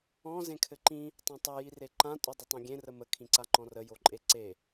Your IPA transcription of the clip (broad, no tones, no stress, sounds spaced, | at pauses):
ɔ̃ z ẽ kʰ ɘ ǃ ĩ | tˤ ã tˤ ɘ j i r e ǃ ã tʼ o dˤ ə tˤ ĩ ɡʲ ẽ r ə m ə kʰ ĩ ǀ a ŋ͡ǃ ɔ̃ r ə j o ǃʼ e ǀ e